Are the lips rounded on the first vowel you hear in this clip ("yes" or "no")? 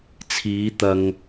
no